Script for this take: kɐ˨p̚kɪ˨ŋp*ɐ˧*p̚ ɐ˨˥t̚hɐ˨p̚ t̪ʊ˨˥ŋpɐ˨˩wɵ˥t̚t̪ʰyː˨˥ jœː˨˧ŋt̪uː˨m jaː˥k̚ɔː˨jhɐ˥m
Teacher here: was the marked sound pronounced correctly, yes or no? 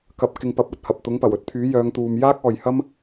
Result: no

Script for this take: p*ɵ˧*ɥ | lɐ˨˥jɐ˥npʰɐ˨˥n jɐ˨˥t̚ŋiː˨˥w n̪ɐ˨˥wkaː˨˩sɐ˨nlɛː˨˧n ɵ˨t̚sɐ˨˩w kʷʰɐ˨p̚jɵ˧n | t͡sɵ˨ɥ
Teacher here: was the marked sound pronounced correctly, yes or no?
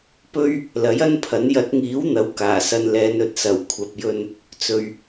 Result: no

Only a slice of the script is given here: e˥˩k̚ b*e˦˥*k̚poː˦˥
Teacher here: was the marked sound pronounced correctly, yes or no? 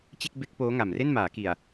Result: yes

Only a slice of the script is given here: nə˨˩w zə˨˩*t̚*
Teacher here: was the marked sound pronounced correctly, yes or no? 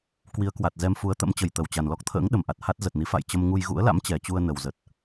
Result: yes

